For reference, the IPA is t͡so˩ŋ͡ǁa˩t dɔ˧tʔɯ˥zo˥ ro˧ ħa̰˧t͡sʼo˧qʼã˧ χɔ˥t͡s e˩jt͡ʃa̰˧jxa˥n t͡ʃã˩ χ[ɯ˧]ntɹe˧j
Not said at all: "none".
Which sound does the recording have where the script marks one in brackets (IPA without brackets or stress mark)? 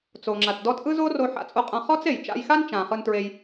ɯ˧